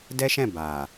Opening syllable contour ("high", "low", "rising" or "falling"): high